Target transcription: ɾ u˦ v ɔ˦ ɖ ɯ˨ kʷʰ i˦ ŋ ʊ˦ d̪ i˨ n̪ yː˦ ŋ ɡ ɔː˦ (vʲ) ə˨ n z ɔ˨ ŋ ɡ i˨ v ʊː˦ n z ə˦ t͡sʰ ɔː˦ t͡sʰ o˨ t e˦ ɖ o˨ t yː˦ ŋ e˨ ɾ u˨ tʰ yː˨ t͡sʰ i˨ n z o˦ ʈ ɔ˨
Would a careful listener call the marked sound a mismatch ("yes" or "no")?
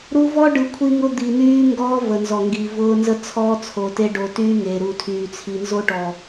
yes